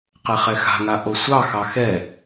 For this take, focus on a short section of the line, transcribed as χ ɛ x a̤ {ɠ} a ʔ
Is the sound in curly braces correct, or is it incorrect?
incorrect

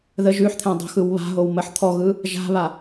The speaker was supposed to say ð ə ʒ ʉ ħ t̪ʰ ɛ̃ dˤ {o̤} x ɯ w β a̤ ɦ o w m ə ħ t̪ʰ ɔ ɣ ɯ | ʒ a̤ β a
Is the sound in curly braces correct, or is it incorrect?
correct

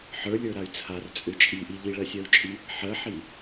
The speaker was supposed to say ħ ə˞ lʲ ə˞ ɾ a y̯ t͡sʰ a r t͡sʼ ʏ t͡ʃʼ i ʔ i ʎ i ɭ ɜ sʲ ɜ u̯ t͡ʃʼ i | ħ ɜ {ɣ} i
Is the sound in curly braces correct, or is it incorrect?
incorrect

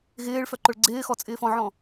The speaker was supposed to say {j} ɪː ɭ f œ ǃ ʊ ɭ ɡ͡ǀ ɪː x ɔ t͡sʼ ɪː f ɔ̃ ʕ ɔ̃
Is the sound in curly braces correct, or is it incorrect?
incorrect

